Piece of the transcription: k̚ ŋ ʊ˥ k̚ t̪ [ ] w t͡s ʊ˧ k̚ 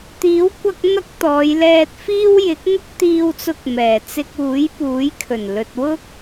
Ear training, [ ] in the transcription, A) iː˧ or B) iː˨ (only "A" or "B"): A